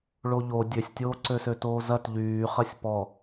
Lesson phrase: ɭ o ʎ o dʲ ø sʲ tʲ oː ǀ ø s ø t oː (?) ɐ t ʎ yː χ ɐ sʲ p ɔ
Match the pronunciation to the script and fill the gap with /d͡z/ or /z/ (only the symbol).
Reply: z